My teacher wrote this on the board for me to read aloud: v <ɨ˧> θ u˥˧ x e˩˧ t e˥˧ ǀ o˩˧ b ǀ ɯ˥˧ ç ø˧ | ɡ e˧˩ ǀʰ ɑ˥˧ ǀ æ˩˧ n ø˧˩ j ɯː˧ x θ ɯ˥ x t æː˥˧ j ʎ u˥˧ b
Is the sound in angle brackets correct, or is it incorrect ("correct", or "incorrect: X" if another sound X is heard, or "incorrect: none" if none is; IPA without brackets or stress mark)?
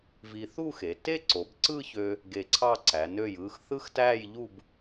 incorrect: i˧